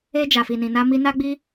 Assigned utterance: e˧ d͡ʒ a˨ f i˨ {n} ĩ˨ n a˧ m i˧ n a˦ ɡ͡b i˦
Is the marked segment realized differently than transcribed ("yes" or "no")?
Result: no